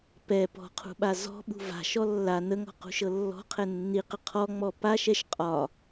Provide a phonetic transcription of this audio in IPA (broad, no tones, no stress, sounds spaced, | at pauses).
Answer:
p ɛ p ɔ̤ qʰ ṳ ɓ a z ɔ̤ ɓ ṳ v a̤ ʃ ɔ lː a n ə ŋ ɔ̤ q ṳ ʃ ɤ lː ɔ̤ qʰ ɛ nː i q ə qʰ ɔ ŋ͡m ɔ p a ʃ ɛ ʃ qʼ ɒ